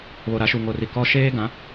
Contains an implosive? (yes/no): no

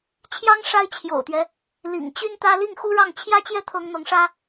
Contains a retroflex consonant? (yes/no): yes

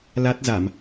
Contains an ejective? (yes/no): no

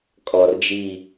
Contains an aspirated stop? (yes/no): no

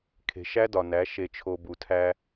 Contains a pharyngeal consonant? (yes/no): no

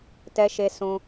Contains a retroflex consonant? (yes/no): no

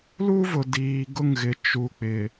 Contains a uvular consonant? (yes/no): no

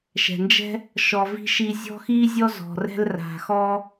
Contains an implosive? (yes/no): no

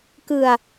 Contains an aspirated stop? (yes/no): no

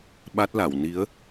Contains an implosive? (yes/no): yes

